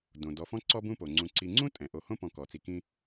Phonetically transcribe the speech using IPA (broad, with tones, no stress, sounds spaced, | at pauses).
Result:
d õ˩ d ɔ˨ f ɔ̃˥ ǀ ɔ˦ b ũ˦ p o˩ ŋ͡ǀ ũ˨ ǀ i˨ ŋ͡ǀ ũ˥ tʼ ɛ̃˩ ʔ o˨ h õ˥ p ɔ̃˨ k ɔ˩ t͡s i˨ k ĩ˦